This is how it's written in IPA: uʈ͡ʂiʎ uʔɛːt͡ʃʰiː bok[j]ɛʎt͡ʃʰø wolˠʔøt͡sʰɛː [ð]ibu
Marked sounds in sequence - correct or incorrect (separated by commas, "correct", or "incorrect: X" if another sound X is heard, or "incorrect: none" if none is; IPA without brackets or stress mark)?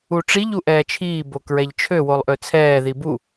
incorrect: ɹ, correct